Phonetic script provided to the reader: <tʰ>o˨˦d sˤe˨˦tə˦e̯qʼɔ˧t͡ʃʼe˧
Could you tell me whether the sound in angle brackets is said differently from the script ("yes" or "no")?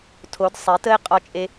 no